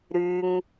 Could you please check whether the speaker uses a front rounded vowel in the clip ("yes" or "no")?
yes